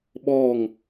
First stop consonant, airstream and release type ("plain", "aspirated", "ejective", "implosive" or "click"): implosive